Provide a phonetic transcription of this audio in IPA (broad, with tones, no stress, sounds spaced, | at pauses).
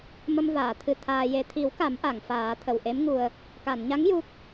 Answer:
m ə˧ m v aː˨˩˨ t̪ʰ ɨ˧ t̪ʰ aː˧ j e˨˩ t̪ʰ i˨˩˦ w k a˨˩˦ m ʔ a˨˩˨ ŋ f aː˨˩˦ t̪ʰ ə˨˩ w ʔ e˧˥ m ŋ u˨˩ ə̯ | k a˨˩˨ n ɲ a˧˥ ŋ j u˦˥ k̚